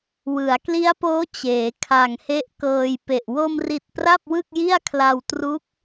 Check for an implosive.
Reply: absent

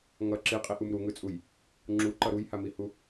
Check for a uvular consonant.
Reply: present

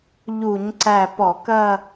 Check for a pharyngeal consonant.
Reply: absent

